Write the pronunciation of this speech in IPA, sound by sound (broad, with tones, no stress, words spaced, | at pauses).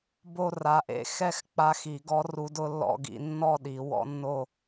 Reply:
bo˥˧ ra˧˥ʔḛ˥˧ xɛ˥˧x k͡pa˧˥xi˨˩˦ɡɔ˧˥ ru˧˥d ʊ˧˥lːɔ̰˥˧ɡḭ˥˧ nːɔ˥˧ ɗi˨˩˦wɔ̰˧˥nːo˥˧